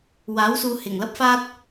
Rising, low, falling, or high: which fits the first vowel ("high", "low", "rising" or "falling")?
rising